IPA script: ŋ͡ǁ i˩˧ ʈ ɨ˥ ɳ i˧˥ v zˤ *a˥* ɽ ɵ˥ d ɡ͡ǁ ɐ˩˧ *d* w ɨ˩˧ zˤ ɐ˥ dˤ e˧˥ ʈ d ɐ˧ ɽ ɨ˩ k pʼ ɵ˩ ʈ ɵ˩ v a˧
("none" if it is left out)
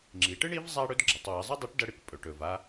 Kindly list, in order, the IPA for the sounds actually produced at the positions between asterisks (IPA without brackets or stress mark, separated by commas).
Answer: a˥, tˤ